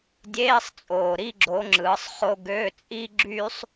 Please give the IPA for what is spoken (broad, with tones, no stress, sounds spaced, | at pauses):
dʲ eː˧˥˧ sˤ t͡sʼ oː˨˩ ɾ i˥˧ ɡ͡ǁ o˨˦ ŋ͡ǁ ɯː˨˦ sˤ χ o˥ ɡ ø˧˥˧ t͡sʼ i˥ ɡ͡ǁ yː˥ sˤ